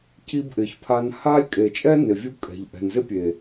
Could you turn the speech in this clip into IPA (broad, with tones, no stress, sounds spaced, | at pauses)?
cʰ i˧ b ʔ ɪ˨ ç pʰ a˧ n h a˦ lʲ kʼ e˨ t͡ʃʼ ɛ˦ n ɪ˨ vʲ u˧ kʼ ɛ̤˨ ʎ ʔ ɛ̤˨ n z ɪ˦ pʲ e˨